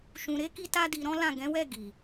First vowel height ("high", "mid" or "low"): high